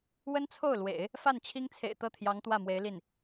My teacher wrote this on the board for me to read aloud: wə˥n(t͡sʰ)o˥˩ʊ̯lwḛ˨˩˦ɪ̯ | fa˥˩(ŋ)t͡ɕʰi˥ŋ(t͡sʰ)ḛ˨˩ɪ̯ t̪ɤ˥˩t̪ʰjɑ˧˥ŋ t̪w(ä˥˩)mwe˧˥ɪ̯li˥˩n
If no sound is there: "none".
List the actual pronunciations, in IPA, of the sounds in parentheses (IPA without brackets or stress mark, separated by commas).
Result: t͡sʰ, n, t͡sʰ, ä˥˩